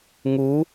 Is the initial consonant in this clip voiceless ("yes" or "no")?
no